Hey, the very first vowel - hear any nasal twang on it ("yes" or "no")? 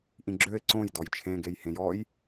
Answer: yes